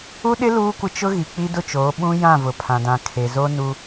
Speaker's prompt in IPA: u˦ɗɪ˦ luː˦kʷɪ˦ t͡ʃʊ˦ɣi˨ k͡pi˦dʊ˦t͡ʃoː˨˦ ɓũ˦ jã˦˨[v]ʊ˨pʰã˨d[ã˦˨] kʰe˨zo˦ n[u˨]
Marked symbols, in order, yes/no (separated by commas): yes, no, no